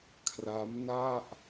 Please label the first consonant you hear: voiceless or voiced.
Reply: voiceless